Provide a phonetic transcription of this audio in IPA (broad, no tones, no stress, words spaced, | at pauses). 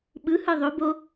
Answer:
ɓɯhɯ ðˤobo